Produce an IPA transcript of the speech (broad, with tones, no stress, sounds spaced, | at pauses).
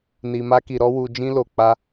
n i˧ m a˦ k i˧ ɾ ɔ˦ w u˧ d͡ʒ ĩ˦ l o˧ k͡p a˦